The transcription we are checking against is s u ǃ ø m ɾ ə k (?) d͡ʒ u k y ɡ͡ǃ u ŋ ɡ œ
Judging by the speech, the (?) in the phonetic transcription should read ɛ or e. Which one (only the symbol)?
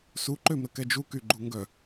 ɛ